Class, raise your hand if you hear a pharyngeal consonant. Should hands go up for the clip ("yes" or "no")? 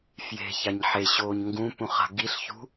yes